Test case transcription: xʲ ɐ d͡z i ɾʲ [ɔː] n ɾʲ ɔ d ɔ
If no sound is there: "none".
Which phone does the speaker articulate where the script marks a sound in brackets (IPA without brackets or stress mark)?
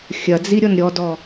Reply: ɔ